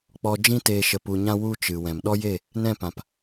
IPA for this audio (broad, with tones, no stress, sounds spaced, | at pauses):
k͡p ɔ˧ d͡ʒ ĩ˦ t eː˧ ʃ ə˧ p u˧ ɲ ã˦ w u˦ t͡ʃ ɨ˨ w ɛ̃˨ m ɗ ɔ˦ j e˦˨ | n ɛ̃˦˨ p ã˨ p